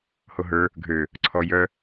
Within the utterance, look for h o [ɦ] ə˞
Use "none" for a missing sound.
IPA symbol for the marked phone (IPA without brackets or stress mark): ɦ